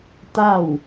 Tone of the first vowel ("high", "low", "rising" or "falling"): falling